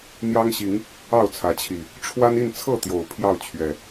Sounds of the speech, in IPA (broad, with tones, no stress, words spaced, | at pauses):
n̪jɑ˦ŋɕi˨˦ŋ | ɑ˥˨ʊ̯t͡sʰä˨˦t͡ɕʰi˨˩ | ʈ͡ʂʰwa˦ni˥˨nt͡sʰɤ˥˨t̪jo˨˩ʊ̯ pʰjɑ˥˨ʊ̯t͡ɕʰɥɛ˨˩